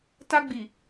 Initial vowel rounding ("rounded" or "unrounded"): unrounded